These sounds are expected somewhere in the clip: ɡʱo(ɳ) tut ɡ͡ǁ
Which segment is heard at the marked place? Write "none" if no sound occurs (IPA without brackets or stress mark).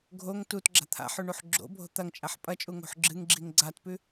ŋ